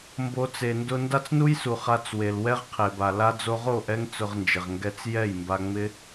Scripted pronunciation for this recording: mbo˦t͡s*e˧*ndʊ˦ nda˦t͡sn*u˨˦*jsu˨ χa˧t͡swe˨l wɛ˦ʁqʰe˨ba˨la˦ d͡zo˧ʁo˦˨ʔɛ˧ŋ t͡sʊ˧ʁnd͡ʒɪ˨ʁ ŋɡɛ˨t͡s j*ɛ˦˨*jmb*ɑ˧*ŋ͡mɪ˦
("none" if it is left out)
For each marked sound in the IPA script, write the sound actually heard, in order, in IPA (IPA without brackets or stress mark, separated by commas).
e˧, u˦, ɛ˦˨, a˧